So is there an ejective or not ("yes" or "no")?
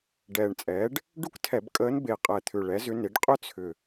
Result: yes